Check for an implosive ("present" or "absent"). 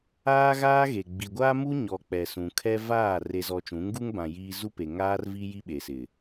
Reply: present